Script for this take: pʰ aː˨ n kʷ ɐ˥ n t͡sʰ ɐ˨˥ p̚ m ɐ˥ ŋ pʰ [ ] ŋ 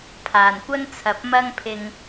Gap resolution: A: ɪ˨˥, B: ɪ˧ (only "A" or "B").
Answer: B